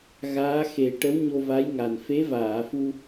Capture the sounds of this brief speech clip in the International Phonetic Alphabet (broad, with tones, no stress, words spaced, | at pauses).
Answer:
ɣaː˧˥xe˨˩˦ ʈə˧˥wɲo˧va˧˥j ŋa˨˩n fe˧˥vaː˨˩˨fu˧